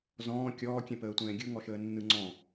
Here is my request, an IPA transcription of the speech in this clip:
zɔ̃ː kʲɔːkʲɛ̃pəːtʷɛ̃ː ɡʲɯŋɔʃəːnːɯ ŋ͡ǀɔ̃

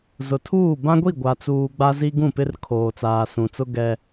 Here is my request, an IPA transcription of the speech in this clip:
zʊ˨tʰuː˦˨ bã˦ɡʷi˦˨ ɡʷa˨t͡suː˨ ɡ͡ba˦zi˦ɡũ˦˨pɪ˦r kʰoː˨t͡saː˨sũ˨t͡sʊ˦ ɡɛ˦

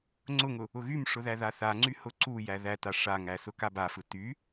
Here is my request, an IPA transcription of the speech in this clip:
ŋ͡ǀʊŋʊ | ʊɣymʂʊðæ ðaθaŋ͡ǀy hʊǀu jæðæta ʂaŋæ sʊkabafɯ ty

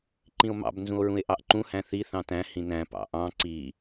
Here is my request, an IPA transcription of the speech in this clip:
ǃĩo̯mɑ̰b nzũo̯ɹũe̯ʔɑʔǃũ hæ̃θi θɑ̃tæ̃ hĩnæ̃ pɑ̰ʔɑ̃ ǀi

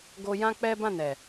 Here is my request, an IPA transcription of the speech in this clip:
ɡo˦ jã˦k͡pɛ˦ bã˦˨ nɛ˨

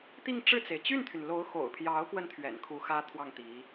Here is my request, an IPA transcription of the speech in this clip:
t̪i˥˧ŋ ʈ͡ʂɻ̩˥˩t͡se˩ɪ̯ t͡ɕy˥˩nt̪ʰy˩n lo˧˥ʊ̯xo̰˨˩ʊ̯pʰjɑ˧˥ʊ̯kwə˧n t̪ʰɥɛ̰˨˩nkʰu˧˥xä˥ t̪ʰwɑ˥˩ŋt̪i˧˥

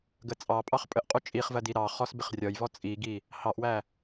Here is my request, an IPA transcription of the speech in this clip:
ɡət͡sʼɑpʼɑχ pʼəʔqʼu t͡ʃʼiχvɜ diɾɑχɔs bɪχrʲɒjvɔ t͡sʼiɡi | hɑʔwæ

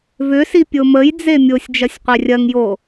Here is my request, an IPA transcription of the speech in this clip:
vʏsi pʲoməj d͡zemʲosʲ d͡ʒɐsʲqʷerʲɐŋjo

